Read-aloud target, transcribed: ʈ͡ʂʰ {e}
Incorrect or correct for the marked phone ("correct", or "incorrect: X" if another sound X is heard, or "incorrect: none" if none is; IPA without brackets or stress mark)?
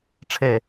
correct